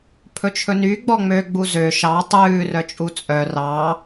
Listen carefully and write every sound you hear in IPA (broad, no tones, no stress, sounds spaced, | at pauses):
pʰ ɵ t͡ʃʰ ɵ n y ɡ͡b ɔ ŋ͡m ø ɡ͡b u z ø ʃ ɑ tˤ ʉː r œ t͡ʃʼ u t͡sʼ œ r ɑ